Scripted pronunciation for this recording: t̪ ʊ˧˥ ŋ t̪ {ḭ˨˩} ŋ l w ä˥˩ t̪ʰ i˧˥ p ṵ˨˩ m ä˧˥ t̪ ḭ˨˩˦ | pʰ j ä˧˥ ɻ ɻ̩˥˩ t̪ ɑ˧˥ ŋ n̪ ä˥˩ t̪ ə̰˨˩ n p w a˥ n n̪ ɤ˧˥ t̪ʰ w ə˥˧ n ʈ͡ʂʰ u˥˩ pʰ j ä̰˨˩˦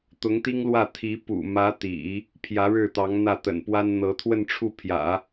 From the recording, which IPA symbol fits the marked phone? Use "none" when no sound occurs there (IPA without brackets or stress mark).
i˥